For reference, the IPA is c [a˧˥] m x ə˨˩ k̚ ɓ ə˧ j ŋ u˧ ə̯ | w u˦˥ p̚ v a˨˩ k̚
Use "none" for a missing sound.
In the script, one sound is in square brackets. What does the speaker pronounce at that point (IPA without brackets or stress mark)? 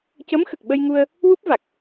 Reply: ə˧˥